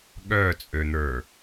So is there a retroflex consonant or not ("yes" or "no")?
no